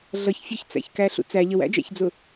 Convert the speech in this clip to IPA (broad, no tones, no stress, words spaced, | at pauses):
ɮʌç fʲʊçt͡sæ̰çkæɬṵ t͡sæ ʎəwæ̰d͡ʒæ̰çd͡zʊ